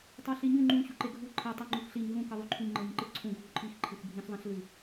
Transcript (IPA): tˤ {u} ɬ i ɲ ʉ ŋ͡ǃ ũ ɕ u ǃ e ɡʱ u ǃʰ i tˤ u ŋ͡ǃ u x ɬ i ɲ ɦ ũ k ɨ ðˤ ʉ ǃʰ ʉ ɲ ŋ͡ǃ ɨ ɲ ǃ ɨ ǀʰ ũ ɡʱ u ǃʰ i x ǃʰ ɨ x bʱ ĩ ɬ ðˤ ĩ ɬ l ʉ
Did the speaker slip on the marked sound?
yes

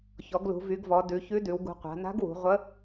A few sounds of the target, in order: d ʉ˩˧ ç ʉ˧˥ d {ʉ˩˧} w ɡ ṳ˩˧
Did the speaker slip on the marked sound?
no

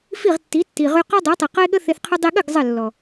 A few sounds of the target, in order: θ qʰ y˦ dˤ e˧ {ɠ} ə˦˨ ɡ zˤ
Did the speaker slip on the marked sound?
no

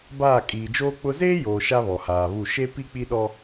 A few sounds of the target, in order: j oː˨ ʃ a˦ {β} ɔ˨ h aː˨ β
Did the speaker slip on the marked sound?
no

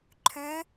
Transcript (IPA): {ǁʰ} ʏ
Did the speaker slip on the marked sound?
yes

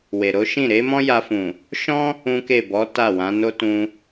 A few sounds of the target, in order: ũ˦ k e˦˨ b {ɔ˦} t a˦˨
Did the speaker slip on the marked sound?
yes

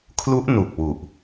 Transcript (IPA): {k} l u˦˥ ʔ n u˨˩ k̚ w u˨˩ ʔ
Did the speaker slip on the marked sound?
yes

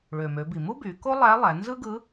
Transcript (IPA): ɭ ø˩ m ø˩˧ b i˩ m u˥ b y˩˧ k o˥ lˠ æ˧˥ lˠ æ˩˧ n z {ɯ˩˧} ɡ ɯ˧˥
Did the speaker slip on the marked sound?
yes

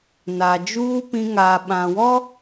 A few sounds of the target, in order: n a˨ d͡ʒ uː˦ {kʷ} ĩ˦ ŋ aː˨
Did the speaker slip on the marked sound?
yes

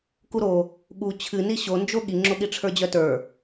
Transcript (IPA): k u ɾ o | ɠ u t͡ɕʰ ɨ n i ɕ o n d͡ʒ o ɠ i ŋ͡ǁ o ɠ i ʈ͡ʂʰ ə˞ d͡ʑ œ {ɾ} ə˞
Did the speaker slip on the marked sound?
yes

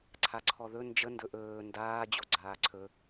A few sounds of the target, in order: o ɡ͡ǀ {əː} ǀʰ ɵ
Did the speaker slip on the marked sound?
yes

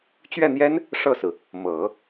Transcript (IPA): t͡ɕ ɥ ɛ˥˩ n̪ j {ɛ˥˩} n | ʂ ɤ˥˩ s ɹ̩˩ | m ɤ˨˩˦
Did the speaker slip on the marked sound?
yes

